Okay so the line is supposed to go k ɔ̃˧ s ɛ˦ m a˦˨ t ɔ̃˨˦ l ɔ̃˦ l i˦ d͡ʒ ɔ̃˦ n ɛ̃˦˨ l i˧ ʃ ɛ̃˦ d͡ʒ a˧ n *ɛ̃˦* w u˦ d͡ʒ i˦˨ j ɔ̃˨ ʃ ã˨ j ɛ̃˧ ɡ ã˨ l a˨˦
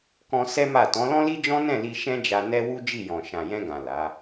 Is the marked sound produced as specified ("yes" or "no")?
no